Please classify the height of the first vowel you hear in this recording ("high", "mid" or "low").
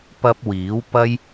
low